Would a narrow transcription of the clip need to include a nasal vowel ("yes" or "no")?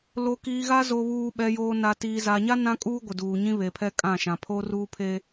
yes